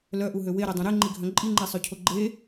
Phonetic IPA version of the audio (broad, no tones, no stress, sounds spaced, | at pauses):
l œ ʔ u ɦ ø w e ɾ ɛ dˤ œ̃ ɾ e ŋ͡ǃ i ɡʱ œ̃ ǃʼ i ŋ͡ǃ e sˤ ø cʰ o ɡ͡ǃ e